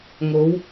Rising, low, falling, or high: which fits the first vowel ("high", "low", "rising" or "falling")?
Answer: rising